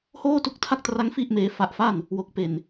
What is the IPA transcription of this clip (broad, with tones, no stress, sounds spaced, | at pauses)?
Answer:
h oː˥˩ t u˦˥ k̚ tʰ a˥˩ k̚ t r a˦˥ ŋ f i˥˩ ʔ m eː˧ f a˦˥ ʔ f a˥˩ n | w o˨˩ k̚ p e˨˩ n